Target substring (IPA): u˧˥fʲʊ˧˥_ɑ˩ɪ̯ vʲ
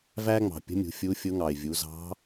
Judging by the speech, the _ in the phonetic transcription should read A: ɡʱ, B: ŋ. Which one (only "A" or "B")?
B